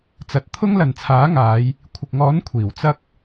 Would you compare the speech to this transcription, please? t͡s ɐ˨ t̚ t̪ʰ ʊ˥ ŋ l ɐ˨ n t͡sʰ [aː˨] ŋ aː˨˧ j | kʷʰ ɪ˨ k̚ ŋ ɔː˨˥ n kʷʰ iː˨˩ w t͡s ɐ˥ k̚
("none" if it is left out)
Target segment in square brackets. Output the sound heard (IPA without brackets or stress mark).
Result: aː˨˥